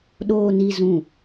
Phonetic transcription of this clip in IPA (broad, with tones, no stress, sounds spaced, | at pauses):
ɗ oː˨ n i˨ z ũ˨